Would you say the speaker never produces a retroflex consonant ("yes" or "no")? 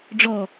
no